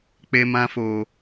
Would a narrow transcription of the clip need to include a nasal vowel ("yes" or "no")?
yes